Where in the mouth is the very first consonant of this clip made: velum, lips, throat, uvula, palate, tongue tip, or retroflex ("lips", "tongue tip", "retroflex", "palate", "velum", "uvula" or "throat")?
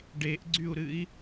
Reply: retroflex